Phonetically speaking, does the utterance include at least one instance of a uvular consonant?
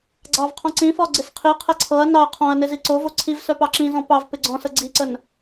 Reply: yes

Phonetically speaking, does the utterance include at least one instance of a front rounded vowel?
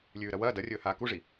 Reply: no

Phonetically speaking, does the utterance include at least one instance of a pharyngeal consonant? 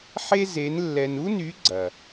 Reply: yes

